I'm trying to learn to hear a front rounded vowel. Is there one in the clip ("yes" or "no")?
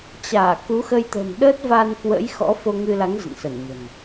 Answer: no